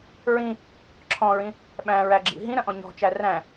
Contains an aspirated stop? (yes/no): yes